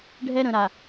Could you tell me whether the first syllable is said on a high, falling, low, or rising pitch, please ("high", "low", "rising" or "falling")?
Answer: high